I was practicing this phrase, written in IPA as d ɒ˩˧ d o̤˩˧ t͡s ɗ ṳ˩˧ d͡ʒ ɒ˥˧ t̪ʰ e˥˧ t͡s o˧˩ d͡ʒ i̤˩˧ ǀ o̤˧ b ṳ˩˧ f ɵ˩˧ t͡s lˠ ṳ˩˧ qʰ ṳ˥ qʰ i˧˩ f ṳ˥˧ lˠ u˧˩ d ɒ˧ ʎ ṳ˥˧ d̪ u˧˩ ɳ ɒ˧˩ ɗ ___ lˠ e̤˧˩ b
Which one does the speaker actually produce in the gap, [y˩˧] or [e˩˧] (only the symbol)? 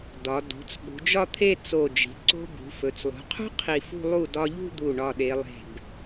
e˩˧